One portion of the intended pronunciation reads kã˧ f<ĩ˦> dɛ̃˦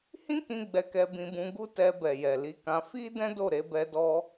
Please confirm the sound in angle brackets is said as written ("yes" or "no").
no